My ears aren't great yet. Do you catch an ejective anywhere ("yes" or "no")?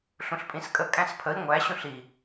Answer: yes